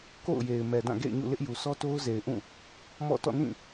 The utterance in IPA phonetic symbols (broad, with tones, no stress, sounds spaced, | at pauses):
k o̰˦˨ ʊ̯ j e˨ ɪ̯ m ɛ˨ d ã˦˨ ɡ ḛ˦˨ ɪ̯ ɲ ṵ˦˨ l ɪ˦ ʔ j u˨ s ɔ˦ t o˦ ʊ̯ z e˨ ɪ̯ ʔ ũ˦˨ | m ɔ̰˦˨ t ɔ̰˦˨ n ĩ˦˨